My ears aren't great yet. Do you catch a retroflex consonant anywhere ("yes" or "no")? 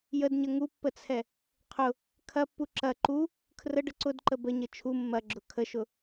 yes